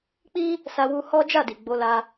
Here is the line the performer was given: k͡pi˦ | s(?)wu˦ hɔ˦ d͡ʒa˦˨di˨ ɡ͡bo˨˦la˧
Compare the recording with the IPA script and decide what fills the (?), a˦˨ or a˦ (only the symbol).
a˦